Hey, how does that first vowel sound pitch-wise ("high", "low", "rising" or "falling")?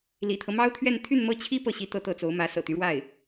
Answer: low